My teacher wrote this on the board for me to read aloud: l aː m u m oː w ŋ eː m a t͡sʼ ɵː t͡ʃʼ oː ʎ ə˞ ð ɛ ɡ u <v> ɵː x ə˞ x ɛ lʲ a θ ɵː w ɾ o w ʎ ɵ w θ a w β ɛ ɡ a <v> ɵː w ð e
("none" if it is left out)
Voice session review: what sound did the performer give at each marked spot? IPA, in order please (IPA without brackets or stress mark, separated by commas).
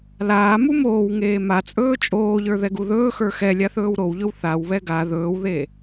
ð, ð